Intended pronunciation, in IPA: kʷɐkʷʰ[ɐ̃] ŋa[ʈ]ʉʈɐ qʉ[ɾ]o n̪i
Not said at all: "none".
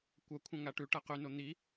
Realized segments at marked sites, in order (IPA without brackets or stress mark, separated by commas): ɐ̃, ʈ, n